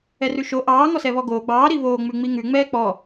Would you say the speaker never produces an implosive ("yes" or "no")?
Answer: yes